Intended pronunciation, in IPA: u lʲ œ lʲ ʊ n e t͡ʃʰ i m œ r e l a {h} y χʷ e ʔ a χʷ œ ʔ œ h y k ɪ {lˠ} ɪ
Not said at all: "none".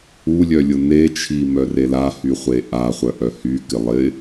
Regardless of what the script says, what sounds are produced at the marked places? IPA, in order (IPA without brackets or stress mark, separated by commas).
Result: h, lˠ